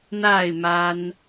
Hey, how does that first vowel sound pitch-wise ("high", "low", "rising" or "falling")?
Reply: falling